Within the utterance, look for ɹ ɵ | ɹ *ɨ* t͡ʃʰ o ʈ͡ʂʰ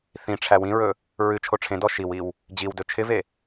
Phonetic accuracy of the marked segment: correct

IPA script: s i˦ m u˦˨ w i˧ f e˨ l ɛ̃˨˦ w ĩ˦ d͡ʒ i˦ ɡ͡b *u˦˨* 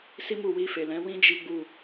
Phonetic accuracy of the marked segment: correct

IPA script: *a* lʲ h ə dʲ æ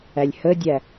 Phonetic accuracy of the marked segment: incorrect: æ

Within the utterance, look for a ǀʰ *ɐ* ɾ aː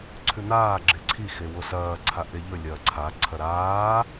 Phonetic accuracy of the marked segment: correct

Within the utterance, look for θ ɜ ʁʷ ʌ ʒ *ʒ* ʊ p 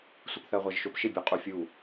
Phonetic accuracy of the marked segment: incorrect: ʃ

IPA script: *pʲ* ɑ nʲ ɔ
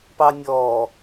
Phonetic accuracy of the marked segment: incorrect: p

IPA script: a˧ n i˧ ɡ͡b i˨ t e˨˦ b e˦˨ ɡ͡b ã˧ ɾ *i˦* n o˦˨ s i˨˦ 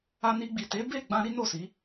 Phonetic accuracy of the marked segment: correct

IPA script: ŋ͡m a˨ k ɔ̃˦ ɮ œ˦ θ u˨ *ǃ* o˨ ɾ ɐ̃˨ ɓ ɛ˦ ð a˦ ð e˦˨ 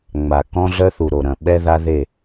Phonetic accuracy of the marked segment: incorrect: ɾ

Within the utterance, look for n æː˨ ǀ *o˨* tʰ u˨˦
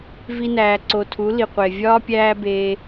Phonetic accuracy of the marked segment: correct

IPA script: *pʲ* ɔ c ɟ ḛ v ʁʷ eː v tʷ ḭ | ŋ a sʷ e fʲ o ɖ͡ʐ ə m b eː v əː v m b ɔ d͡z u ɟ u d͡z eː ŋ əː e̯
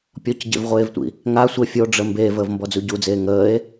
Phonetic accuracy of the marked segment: correct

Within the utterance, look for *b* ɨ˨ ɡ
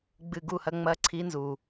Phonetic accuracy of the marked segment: incorrect: ɡ͡b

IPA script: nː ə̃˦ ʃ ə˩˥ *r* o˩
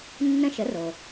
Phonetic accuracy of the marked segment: correct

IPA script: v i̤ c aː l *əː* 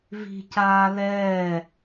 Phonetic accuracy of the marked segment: incorrect: ɛː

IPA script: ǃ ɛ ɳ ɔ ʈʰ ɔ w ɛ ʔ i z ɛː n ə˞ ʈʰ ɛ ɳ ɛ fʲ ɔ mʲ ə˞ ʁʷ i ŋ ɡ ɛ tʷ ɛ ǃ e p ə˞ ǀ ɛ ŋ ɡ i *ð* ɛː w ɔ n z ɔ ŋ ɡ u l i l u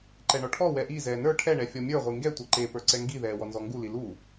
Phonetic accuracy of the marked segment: correct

